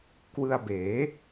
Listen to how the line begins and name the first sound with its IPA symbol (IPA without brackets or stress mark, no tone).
k